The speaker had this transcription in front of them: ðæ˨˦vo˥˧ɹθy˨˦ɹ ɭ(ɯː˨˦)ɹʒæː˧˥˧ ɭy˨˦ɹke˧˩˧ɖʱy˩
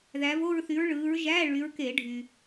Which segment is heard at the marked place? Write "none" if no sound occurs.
ɯː˨˦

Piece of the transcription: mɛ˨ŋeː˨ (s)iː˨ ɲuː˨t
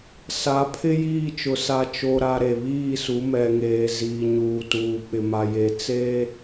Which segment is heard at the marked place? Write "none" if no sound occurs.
z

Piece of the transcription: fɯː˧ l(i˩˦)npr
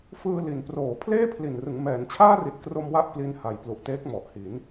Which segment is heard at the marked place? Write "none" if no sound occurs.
i˩˦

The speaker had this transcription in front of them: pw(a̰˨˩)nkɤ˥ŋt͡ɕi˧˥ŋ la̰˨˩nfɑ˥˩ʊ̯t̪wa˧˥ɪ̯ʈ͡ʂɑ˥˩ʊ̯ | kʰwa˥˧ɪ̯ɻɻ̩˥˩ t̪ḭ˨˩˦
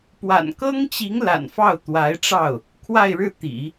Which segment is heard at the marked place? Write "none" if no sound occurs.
a̰˨˩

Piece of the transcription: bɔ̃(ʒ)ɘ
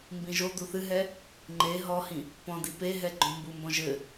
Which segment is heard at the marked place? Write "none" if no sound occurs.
ʒ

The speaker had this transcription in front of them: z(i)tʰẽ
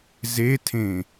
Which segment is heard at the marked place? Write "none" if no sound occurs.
e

